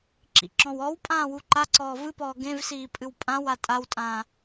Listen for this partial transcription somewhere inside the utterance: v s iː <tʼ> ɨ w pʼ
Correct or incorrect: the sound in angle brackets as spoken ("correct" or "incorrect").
incorrect